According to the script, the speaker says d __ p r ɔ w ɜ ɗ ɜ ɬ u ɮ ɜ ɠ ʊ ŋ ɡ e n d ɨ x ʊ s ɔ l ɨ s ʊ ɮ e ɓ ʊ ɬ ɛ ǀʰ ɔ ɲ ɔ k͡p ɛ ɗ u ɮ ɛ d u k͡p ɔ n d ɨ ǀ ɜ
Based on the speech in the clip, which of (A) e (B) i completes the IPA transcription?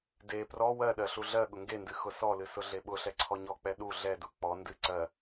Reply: A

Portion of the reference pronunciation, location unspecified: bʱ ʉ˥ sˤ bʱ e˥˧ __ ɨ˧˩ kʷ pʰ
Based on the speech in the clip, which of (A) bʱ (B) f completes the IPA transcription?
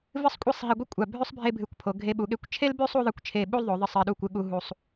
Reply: A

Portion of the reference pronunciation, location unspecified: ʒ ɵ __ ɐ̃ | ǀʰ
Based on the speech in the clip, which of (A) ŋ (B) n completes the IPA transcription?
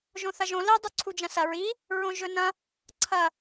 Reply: B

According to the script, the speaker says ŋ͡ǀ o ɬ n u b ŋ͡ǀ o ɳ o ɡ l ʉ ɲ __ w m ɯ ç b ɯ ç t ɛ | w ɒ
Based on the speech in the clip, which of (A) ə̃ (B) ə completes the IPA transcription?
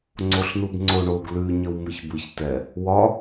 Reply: B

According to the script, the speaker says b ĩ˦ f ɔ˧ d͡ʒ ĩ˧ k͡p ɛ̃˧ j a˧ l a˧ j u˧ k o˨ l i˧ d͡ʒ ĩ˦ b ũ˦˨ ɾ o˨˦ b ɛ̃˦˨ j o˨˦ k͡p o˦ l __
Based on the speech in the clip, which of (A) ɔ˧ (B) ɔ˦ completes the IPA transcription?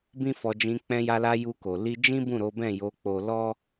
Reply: B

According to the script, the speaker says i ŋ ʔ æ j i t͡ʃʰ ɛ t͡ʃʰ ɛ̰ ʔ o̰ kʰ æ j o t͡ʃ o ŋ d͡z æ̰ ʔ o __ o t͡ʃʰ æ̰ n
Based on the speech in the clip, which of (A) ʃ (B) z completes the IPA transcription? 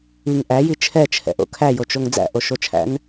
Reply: A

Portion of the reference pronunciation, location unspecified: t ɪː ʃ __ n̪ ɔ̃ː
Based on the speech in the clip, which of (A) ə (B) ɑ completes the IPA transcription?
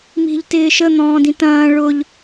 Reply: A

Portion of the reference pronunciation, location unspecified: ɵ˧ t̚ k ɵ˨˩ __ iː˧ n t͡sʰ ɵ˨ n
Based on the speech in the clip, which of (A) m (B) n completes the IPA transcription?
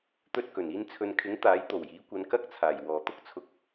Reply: B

